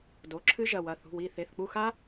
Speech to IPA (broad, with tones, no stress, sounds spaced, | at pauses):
d o˩˧˩ ǁʰ ɨ˦˥ ʒ ɐ˧˩ w ɐ˩˧˩ θ ṳ˩˧˩ w i˧˩ θ e˩˧˩ θ k͡p u˧˩ x a˦˥